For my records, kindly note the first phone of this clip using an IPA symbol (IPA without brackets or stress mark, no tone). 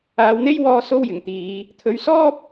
aː